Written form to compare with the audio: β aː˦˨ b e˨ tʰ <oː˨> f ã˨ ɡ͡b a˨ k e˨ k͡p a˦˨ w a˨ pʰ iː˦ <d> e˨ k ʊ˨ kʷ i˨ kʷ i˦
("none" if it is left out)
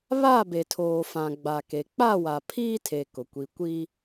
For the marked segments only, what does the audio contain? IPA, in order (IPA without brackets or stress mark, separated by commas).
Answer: oː˨, tʰ